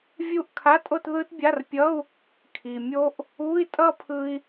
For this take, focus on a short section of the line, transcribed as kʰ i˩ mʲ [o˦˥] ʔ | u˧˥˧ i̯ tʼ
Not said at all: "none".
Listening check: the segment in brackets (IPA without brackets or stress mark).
o˦˥